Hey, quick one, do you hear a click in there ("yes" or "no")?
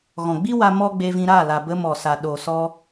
no